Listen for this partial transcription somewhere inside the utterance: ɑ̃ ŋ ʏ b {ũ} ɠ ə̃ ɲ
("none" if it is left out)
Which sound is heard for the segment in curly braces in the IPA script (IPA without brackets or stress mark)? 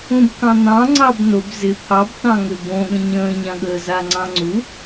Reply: õ